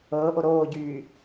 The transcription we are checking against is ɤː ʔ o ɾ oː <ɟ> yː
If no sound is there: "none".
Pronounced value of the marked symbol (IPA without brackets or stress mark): ɟ